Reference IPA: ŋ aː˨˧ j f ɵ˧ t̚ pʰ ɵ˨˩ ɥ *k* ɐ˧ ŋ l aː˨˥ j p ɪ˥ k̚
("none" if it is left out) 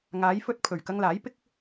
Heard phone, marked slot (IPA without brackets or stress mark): k